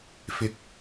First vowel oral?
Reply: yes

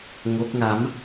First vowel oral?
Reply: yes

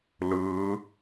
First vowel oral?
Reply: yes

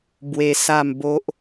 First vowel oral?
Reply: yes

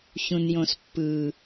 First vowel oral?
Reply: no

